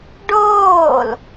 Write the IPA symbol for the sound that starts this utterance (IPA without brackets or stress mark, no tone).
ɖ